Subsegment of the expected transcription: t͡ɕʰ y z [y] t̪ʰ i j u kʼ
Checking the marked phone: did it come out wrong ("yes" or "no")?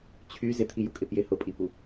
yes